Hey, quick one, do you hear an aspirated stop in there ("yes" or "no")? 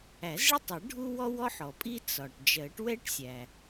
no